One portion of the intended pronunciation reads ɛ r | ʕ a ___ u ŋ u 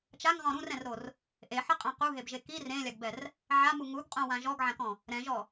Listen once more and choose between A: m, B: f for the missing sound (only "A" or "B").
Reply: A